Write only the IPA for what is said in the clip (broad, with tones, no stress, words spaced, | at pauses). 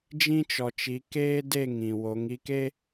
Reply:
d͡ʒĩ˦t͡ʃɔ˨t͡ʃi˨˦ keː˦de˦˨ ŋĩ˨wo˨˦ŋi˦ke˦